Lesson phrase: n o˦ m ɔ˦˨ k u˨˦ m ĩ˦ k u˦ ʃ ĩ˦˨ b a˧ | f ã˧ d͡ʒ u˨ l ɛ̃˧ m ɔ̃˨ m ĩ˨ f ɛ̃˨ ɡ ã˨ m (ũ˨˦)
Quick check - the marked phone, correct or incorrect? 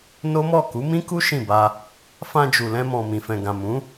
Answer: correct